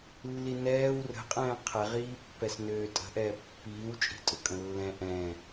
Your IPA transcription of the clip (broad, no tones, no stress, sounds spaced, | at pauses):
lː i n ɛː w r ə̤ qʼ ɛ̃ː qʰ ɛ ʁ iː pː ɛ s n øː tʼ ə̤ ʔ ɛː pː iː w t͡ʃʼ i̤ tʼ ʊ kʼ ə̃ lː ɛ̃ ʔ ɛ̃